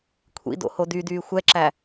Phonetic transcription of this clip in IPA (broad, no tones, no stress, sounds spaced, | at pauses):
kʷʰ ḭ d o̰ h o d y d yː xʷ ɛ ǁ æ